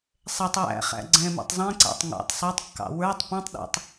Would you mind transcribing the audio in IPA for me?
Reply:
sˤ ɛ tˤ w æ̰ χ æ̰ ɡ͡ǀ ɛ̃ m ɛ̰ tˤ zˤ ĩ ǀ æ̰ tˤ ŋ ɑ̰ tˤ sˤ ɑ tˤ kː ɑ̰ w ə˞ tˤ p ĩ tˤ ɗ ɔ̰ tˤ

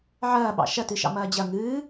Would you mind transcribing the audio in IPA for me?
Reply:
ʕ ɐː ɓ ɑ̰ ʃ ɐ t ɨ ʃ ɑ̰ m ɐː d͡ʑ ɐ ŋ ɨː

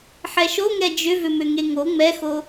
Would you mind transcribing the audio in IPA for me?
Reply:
ħ ɛ ʃ o ŋ ɛ d͡ʒ ʏ v ʏ m ʏ ŋ e ŋ o ŋ͡m ɛ x o

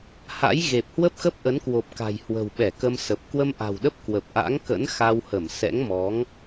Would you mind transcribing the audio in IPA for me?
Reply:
h a̰˧˥ j ɣ e˨˩ p̚ h w ə˦˥ p̚ x ə˦˥ p̚ ʔ ə˨˦ n k w o˨˩ p̚ k a̤˨˩ j h w ə̤˨˩ w ɓ ɛ˧˩ k ə˧ m s ə˨˩ p̚ k w ə˧ m ʔ a̤˨˩ w ɗ ə˦˥ p̚ k w ə˨˩ p̚ ʔ a̰˧˥ ŋ k ə̰˧˥ n x a˧ w h ə˧˩ m s ɛ̰˧˥ ŋ m ɔ˨˦ ŋ

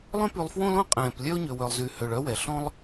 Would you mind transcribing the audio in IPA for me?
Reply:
lˠ œ̃˦ p y˨ lˠ f w õ˦ l õ˦ qʼ ɛ̃ː˩ p lʲ œ˦ ʊ̯ ɲ ø˩ w œ˩ lˠ z y˩ h ø˨ ɭ œ˥ w ɛ˩ ɬ ɔ̃˥ lˠ

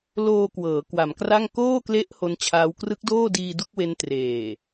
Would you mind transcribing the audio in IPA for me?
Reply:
l oː˧ k w ɤː˩˦ k w a˩˦ m k r a˥˩ ŋ k oː˥˩ k l e˦˥ ʔ h o˦˥ n t͡ɕʰ aː˦˥ w k r ɯ˦˥ k̚ d oː˥˩ d iː˧ d u˥˩ k̚ w e˦˥ n t r eː˨˩

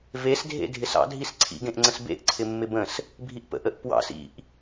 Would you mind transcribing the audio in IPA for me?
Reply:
v e s dʱ ḛ dʱ ɪ s ɑ̰ dʱ i s ǀʰ ḭ ɡ ẽ ʔ ŋ͡ǀ ə̃ s b ḛ ʔ ǀʰ ɪ mː ɪ b ə̃ s | bʱ i ʔ p ə̰ ʔ ə ʔ p w ɑ̰ s ḭ ʔ

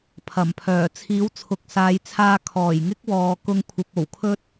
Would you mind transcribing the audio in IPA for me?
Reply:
pʰ ɐ˨˩ m pʰ œː˨˩ t͡sʰ iː˨˥ w t͡sʰ ʊ˨ k̚ s aː˨˧ j t͡sʰ aː˧ kʰ ɔː˨˩ j ŋ ɪ˥ k̚ w ɔː˨ k ʊ˧ ŋ kʷʰ ɐ˨ p̚ o˨˩ w kʰ ɵ˥ t̚

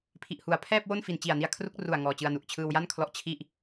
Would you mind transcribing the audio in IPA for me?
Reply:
pʰ i˨˩ ʔ h u˩˦ a̯ pʰ ɛː˥˩ p̚ w o˥˩ n f i˨˩ n t͡ɕ i˨˩ a̯ n i˧ a̯ kʰ r u˦˥ k̚ r u˨˩ a̯ ŋ ɔː˨˩ t͡ɕ ɯ˧ a̯ n u˨˩ ʔ t͡ɕʰ ɯː˧ w j a˥˩ n kʰ l ɔ˦˥ ʔ t͡ɕʰ i˥˩ ʔ

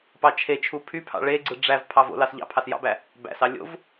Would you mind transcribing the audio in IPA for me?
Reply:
p ɑ t͡ʃʰ e t͡ʃʰ u pʰ y pʰ ɑ̰ ɭ e ɡ͡ǀ ɯ ɖ͡ʐ æ v pʰ ɑ v o̰ l ɑ s ʎ ɑ̰ pʰ ɑ s j ɑ̰ b æ | b æ̰ s ɑ lʲ o̰ v

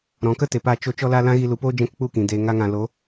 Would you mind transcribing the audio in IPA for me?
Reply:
ɾ ɔ̃˨ k ə˦ t e˨ p a˧ t͡ʃ o˧ t͡ʃ ɔ˧ l a˧ l ã˦ ɣ i˧ l u˨ p oː˦ d͡ʒ ɛ̃˦ k k͡p u˦˨ k ĩ˨ d eː˨ ŋ a˧ ŋ ã˨ l o˨˦

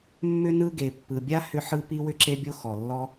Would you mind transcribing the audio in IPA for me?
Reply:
mː ʏ˥ n ɯ˥ ɡ e˩ pː ɯ˩ bʲ a˥ h ʏ˥ ħ ɯ˥ p i˥ w ʏ˥ ǁ e˥ bʲ o˥ x ɔ˩ lː ɔ˥

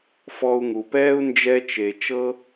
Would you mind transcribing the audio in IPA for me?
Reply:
f ɔ˧ u̯ ŋ u˨ p ɛː˦ u̯ n d͡ʒ ɛ˧ t͡ʃ e˨ t͡ʃ ɤ˦

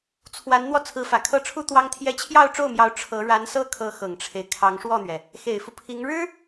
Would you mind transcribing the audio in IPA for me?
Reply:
t͡sʰ w a˧˥ n n̪ w ɔ˧ t͡sʰ ɹ̩˧˥ f ä˨˩ kʰ ɤ˥˩ ʈ͡ʂʰ u˥ t̪ w ɑ˥ ŋ t̪ʰ j ɛ˥ t͡ɕʰ j ɑ˥˧ ʊ̯ ʈ͡ʂ o˥˩ ʊ̯ m j ɑ˧˥ ʊ̯ ʈ͡ʂʰ ɤ˧˥ ɻ a˧˥ n s ɤ˥˩ kʰ ɤ˧˥ x ɤ˨˩ ŋ ʈ͡ʂʰ e˦ ɪ̯ kʰ ɑ˧˥ ŋ ʂ w ɔ˥˩ n̪ ɥ ɛ˩ | x e˨˩ ɪ̯ f u˦ pʰ i˧˥ ŋ ɻ ɻ̩˥

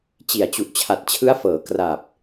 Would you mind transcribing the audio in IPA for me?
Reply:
t͡ɕ i˨˩ a̯ t͡ɕ u˨˩ ʔ t͡ɕʰ a˨˩ t̚ t͡ɕʰ ɯ˦˥ a̯ f ɤː˩˦ k r a˨˩ p̚

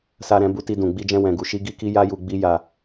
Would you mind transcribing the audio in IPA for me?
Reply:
s a˧ ɾ ɛ̃˧ b u˧ t i˧ d ũ˨ ɡ͡b i˧ d͡ʒ ɛ̃˧ w ɛ̃˨ ɡ u˨ ʃ i˧ ɡ i˦ k i˦ j a˦ j u˧ ɡ͡b i˦ j a˧

